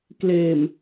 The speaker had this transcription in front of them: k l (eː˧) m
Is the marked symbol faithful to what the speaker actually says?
no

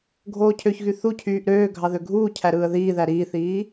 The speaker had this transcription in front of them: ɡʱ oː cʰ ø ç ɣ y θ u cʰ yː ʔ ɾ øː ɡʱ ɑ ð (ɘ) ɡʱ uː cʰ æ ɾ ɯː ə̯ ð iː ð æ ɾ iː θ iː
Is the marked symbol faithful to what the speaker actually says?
no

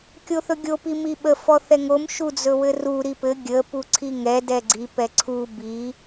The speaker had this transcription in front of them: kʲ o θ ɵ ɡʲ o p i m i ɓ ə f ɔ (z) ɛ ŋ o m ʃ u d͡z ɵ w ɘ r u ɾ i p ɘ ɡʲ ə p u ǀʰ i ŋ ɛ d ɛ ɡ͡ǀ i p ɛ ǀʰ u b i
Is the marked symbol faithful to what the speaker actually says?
no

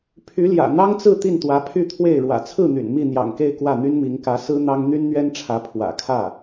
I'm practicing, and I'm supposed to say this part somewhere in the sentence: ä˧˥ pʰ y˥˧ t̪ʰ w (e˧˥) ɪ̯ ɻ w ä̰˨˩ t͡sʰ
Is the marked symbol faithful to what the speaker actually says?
no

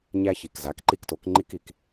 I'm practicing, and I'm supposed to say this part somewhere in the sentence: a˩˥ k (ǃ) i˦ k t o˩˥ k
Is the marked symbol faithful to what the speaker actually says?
yes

